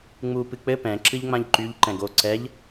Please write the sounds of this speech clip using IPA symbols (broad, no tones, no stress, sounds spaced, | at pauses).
ŋ͡m u p ɨ k͡p ɘ p ɛ̃ ǁ ɨ ʎ ŋ͡m ã ʎ ǃ y ʎ ǃ ɛ̃ ɡ o ǀ ɛ ʎ